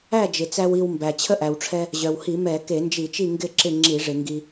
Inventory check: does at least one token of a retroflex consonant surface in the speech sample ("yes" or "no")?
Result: yes